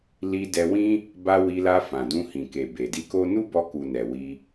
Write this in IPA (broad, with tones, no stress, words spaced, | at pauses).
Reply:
li˧dɛ˧wĩ˦ | ba˧ wi˧la˧ fã˨dũ˧hĩ˨ ke˨be˨di˧ko˦ nu˦bɔ˧ku˨ nɛ˨wi˧